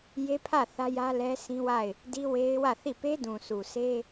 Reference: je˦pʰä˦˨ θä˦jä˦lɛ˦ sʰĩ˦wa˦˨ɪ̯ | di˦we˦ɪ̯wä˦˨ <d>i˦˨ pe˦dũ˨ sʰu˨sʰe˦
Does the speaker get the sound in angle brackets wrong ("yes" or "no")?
yes